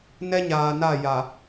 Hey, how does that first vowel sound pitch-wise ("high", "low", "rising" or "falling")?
high